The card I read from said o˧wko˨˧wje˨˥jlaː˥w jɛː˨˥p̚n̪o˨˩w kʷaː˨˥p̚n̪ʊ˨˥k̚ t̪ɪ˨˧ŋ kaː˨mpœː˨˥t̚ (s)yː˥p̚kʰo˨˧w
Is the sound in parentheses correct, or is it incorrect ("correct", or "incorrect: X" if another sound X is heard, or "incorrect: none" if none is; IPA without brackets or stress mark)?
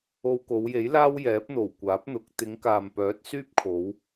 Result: correct